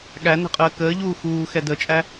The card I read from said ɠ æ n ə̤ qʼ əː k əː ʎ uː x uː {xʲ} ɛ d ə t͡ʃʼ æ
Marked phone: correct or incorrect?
incorrect